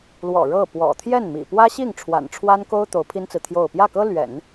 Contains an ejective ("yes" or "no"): no